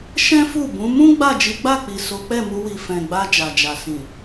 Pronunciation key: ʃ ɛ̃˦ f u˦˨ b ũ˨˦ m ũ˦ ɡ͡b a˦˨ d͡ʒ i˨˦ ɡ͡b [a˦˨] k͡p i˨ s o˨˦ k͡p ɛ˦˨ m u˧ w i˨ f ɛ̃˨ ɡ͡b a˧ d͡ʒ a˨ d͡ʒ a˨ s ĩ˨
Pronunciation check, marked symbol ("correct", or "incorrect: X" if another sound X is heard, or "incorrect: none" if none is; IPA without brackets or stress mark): correct